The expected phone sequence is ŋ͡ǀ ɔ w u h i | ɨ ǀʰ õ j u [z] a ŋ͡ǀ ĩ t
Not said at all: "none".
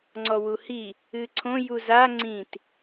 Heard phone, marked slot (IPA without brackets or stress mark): z